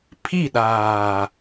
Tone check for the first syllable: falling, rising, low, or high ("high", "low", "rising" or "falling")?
falling